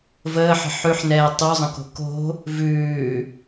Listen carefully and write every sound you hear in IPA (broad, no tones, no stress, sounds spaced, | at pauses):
v əː ħ ə̤ ħ ʉ ħ n ɛː tˤ u zˤ ə̃ k o̤ k o̤ | v ʉː